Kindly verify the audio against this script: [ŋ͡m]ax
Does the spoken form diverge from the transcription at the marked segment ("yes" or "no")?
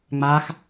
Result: no